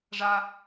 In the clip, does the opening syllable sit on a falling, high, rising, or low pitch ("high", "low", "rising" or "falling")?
high